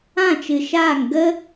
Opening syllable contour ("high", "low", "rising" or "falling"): falling